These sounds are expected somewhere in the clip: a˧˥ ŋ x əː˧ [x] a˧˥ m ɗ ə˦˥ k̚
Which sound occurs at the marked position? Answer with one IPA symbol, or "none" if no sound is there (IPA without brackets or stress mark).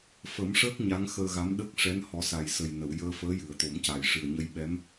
ɣ